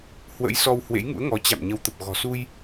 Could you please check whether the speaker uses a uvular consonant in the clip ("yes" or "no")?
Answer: no